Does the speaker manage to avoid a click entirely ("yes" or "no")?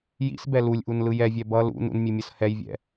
yes